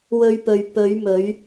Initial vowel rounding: rounded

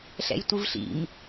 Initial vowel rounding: unrounded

